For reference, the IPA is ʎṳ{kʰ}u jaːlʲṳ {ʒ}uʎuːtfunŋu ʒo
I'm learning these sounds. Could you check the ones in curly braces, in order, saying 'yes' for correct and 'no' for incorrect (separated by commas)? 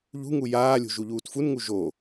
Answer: no, yes